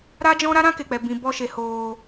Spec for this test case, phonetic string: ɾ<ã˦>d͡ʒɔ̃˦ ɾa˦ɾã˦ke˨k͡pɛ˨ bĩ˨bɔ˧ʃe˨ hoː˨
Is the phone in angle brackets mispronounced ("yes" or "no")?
yes